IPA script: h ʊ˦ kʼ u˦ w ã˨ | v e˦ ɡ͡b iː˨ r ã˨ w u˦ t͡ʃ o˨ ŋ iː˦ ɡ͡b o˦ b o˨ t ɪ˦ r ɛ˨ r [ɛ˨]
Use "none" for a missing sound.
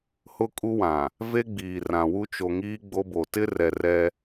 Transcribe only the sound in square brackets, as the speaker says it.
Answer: ɛ˦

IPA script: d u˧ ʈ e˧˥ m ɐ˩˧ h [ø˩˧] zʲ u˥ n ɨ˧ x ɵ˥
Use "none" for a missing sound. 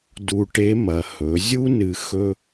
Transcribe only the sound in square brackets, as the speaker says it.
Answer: ɵ˩˧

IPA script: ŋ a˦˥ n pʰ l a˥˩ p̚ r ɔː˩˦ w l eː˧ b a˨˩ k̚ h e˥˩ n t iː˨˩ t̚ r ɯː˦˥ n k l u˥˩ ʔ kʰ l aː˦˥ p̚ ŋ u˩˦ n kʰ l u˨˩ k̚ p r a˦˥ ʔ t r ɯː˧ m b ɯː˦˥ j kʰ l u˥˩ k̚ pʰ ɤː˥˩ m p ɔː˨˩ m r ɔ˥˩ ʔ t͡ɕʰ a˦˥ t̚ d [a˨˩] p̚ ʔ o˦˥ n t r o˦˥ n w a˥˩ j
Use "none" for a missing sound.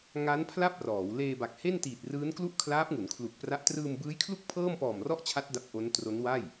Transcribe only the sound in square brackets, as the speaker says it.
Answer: a˦˥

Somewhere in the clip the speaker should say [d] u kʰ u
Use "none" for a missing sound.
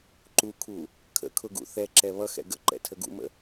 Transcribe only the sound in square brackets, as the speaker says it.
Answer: ǃ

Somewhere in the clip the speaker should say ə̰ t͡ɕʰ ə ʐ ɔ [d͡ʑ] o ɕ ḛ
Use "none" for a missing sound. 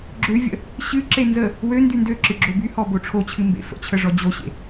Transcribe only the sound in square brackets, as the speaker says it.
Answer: d͡ʑ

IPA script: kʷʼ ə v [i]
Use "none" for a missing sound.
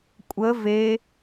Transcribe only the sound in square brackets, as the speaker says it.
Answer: e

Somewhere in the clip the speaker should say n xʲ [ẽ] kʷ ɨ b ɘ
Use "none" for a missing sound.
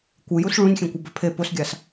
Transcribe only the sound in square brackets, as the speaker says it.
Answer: ẽ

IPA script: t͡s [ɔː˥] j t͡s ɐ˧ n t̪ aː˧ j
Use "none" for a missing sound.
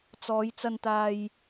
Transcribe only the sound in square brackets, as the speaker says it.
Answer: ɔː˨˧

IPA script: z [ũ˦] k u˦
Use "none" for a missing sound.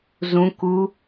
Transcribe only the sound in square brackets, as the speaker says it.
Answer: ũ˦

